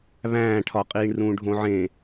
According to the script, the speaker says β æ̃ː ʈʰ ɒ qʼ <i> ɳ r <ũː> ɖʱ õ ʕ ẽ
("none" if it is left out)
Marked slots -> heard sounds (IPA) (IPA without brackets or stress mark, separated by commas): iː, ũː